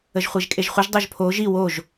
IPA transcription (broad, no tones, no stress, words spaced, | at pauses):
əʒχʷeʒkʼeʒχʷəʒ dˤoʒpʰo ʒi woʒ